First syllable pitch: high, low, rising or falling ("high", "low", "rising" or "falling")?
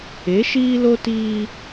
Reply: rising